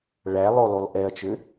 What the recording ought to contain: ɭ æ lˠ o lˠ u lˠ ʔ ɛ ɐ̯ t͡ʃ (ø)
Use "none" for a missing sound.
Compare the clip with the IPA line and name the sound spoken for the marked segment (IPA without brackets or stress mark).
ø